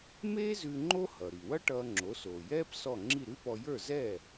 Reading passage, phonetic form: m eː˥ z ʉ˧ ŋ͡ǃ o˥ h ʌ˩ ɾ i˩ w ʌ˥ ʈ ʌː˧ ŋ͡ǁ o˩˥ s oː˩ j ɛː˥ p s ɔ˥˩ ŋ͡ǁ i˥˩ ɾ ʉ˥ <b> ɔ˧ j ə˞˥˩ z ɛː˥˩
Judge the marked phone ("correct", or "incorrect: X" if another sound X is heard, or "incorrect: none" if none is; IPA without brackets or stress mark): incorrect: p